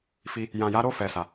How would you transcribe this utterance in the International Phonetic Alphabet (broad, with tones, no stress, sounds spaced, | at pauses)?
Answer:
f i˧ | j ã˨ j a˨˦ ɾ o˦˨ f ɛ˨ s a˨